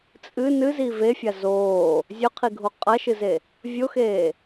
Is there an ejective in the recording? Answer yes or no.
yes